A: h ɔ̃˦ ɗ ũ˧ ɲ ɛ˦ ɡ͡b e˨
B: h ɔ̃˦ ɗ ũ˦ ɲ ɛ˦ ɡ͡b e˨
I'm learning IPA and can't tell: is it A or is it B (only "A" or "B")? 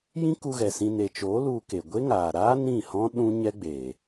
B